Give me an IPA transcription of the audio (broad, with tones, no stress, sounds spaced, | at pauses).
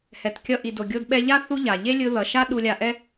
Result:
h ɛ˩ t kʲ ʌ˧ ʔ i˩ d o˩ ɡʲ o˧ d ɓ ɛ˧ ʎ a˥ θ u˥ ʎ a˩ ʎ e˥ lʲ ɯ˧ ð ʌ˩ ʃ a˥ ɗ u˧ lʲ a˧ ʔ ɛ˥